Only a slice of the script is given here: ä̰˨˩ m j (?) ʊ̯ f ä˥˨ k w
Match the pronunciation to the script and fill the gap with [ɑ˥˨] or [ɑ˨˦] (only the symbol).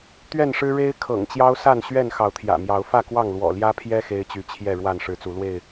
ɑ˨˦